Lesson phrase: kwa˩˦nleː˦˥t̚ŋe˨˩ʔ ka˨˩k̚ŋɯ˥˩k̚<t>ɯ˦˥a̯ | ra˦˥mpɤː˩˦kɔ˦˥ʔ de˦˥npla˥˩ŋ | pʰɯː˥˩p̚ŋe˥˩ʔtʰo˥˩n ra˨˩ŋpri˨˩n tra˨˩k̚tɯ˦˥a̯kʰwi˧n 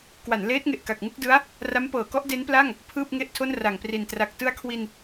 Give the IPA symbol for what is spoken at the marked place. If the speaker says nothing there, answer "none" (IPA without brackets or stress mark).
d